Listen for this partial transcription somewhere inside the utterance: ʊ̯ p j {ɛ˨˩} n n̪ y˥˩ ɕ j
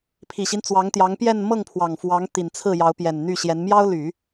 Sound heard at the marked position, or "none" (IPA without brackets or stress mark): ɛ˨˩